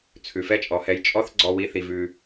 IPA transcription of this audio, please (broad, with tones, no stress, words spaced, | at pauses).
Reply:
t͡sʰʉ˩fɛ˦t͡ʃʼɔ˩hɛ˨j t͡ʃʼɔ˦θɡ͡ǀɔ˨wi˨ θi˩vʉ˩